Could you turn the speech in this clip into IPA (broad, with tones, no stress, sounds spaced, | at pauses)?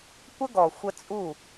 kʷ ə˦ ɡ ɔ˨ xʷ ə˦ t͡sʼ u˦˨